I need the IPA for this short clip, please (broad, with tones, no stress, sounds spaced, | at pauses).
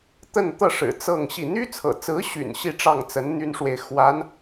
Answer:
t̪ ə˥˧ n t̪ ɤ˥˩ ʂ ɻ̩˨˩ t͡s ɤ˥˧ ŋ ɕ i˥˩ n̪ y˥ t͡sʰ ɤ̰˨˩ t͡s ɹ̩˧˥ ɕ y̰˨˩ n ɕ i˥˧ ʈ͡ʂ ɑ˥˩ ŋ t͡s ə˧˥ n n̪ y˥ n ʂ w e˨ ɪ̯ x w a˧˥ n